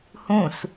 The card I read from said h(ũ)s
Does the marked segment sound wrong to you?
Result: no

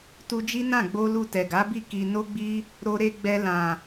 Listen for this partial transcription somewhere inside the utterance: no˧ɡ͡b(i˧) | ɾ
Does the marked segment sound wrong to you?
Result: no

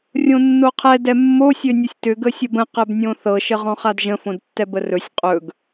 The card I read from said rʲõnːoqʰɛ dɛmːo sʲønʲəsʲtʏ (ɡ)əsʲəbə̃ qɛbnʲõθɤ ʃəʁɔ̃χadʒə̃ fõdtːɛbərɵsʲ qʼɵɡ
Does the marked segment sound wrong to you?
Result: no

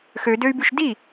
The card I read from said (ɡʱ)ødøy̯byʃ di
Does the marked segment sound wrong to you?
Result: yes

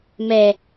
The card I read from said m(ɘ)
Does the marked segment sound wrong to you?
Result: yes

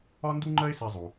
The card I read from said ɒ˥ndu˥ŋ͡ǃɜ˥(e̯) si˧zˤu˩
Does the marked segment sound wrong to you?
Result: no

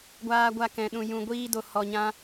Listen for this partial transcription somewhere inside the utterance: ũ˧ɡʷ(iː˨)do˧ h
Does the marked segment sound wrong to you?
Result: yes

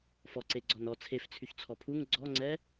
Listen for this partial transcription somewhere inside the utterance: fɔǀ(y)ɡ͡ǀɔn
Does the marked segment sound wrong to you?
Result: yes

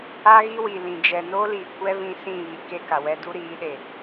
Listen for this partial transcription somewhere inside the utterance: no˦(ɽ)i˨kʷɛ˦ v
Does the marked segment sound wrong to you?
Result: yes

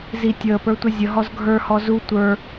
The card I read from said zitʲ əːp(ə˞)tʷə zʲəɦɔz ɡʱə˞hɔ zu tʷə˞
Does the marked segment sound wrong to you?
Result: no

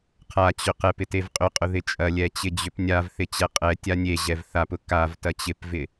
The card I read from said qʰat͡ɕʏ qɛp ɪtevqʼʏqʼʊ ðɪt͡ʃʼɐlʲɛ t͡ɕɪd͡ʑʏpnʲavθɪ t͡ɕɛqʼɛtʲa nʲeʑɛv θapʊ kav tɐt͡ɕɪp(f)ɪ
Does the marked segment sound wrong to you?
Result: yes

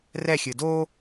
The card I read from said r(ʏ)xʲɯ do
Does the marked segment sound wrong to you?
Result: yes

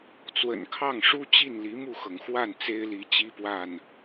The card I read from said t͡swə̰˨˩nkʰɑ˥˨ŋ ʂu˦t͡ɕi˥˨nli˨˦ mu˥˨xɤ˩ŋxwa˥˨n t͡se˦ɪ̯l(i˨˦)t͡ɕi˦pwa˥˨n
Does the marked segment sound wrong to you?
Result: no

